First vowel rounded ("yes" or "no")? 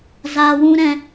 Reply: no